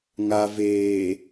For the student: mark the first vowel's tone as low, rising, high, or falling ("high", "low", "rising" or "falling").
low